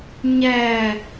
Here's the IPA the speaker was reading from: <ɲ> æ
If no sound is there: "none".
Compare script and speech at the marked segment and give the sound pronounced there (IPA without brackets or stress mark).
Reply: ɲ